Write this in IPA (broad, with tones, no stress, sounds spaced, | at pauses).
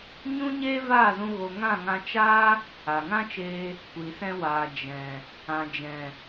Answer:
ɲ ũ˦ ɲ eː˦ v aː˦˨ z ũ˧ ɣ o˧ ŋ ã˦˨ ŋ ã˧ t͡ʃ aː˦ | a˨ ŋ ã˦ t͡ʃ eː˧ | kʷ i˨ s ɛ̃˧ w aː˨ d͡ʒ ɛ̃˨ | ã˨ d͡ʒ ɛ̃˨